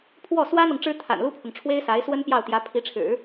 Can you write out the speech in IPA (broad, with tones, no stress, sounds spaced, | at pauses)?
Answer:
pʰ w ɔ˥˩ s w ä˥ n̪ ɤ˨ ŋ ʈ͡ʂ ɻ̩˥ t̪ʰ a̰˨˩ n l u˥ pʰ ʊ˨ ŋ ʈ͡ʂʰ w e˥ ɪ̯ s a˧˥ ɪ̯ s w ə˥ n p j ɑ˥˩ ʊ̯ t̪ j ä˧˥ pʰ i˧˥ ʈ͡ʂʰ ɻ̩˨˩˦